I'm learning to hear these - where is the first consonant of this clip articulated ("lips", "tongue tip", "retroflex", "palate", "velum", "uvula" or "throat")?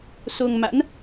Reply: tongue tip